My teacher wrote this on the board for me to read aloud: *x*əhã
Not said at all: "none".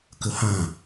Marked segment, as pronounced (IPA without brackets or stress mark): k